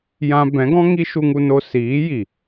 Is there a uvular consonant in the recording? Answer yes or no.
no